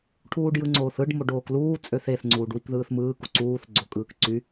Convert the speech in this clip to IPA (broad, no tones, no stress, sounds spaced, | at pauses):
ʈʰ uː ɖ j ɯ ŋ͡ǀ oː θ ɯ ɖ m o ɖ oː k l uː t͡sʼ ø θ e θ ŋ͡ǀ uː ɖ w i k ð ɯː θ m ɯː k u ǀ uː θ ɡ͡ǀ o kʼ ɯː k ǀ y